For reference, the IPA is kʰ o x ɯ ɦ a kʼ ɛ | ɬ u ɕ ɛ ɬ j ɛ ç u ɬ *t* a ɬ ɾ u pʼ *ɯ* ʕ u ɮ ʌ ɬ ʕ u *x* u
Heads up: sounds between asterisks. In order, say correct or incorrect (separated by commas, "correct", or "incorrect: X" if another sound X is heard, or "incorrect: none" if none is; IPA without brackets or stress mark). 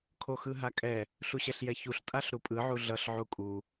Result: incorrect: tʼ, correct, incorrect: kʼ